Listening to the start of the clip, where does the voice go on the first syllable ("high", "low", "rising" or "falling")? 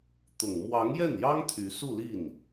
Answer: low